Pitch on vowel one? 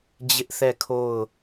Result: high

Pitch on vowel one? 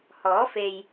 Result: rising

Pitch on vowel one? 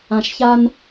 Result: low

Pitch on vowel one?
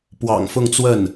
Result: low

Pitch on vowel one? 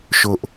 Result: high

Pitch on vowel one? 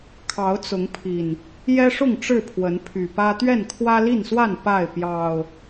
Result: rising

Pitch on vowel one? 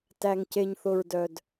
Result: low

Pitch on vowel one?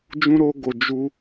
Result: high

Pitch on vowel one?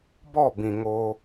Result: falling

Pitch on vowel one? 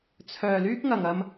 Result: low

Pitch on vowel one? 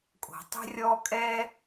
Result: low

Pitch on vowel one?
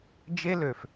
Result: high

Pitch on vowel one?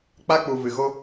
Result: high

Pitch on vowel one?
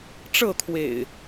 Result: falling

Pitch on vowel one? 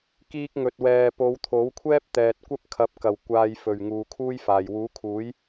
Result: high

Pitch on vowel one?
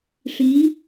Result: rising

